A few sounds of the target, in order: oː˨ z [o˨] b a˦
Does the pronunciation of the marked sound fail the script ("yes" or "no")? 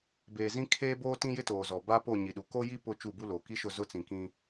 yes